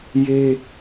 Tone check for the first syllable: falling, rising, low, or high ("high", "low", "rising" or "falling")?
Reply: high